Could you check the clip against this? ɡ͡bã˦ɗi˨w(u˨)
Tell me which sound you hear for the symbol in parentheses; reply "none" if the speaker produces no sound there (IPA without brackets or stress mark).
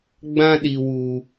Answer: u˨